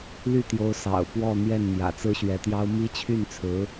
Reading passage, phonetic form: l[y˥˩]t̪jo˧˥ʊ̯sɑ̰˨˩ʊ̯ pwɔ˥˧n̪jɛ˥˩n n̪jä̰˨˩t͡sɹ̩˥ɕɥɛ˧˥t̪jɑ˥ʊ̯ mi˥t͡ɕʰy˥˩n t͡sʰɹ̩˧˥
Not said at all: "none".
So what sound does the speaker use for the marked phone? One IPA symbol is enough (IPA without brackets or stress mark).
y˥˩